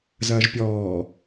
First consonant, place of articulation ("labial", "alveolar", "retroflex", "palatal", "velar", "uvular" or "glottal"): alveolar